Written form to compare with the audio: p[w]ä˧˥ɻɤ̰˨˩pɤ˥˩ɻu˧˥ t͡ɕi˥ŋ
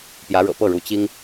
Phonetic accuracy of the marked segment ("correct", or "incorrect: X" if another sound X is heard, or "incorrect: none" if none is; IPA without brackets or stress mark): incorrect: j